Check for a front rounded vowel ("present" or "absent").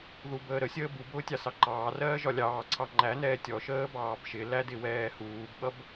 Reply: absent